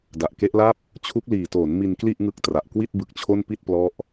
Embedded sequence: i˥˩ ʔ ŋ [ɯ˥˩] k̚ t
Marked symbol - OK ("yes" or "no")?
no